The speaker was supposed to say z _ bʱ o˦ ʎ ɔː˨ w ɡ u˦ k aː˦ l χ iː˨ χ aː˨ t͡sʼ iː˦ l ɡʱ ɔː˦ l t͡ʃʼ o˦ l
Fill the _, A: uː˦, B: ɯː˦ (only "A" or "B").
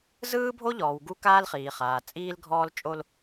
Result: B